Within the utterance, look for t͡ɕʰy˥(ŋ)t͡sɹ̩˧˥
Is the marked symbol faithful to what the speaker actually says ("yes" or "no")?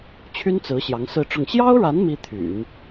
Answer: no